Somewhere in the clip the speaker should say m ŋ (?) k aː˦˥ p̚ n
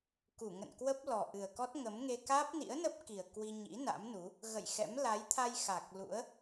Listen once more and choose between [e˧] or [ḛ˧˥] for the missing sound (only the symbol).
e˧